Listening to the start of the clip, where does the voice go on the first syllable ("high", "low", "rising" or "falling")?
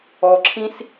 low